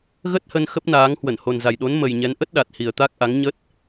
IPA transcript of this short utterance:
ɣə˦˥t̚hə˧n xə˦˥p̚naː˨˦ŋ hwə˧˩nho˨˩nza˨˩jɗo˨˦n mə˨˩jɲɛ˨˦n ʔə˦˥t̚ɗa˨˩t̚ hi˨˩ə̯t̪a˦˥k̚ʔa˨˦ŋ ɲə˦˥t̚

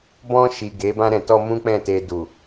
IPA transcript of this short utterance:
bɔ̃˧ ʃi˨ɡe˨˦ bã˧ɾɛ̃˨tɔ˧ mũ˦k͡pɛ̃˦˨te˧ du˨

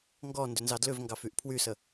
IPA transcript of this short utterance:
ŋɡɔ ndʏnzɑdlʏvŋɡɑf yʔpʰwysə

